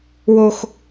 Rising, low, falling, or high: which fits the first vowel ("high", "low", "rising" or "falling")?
high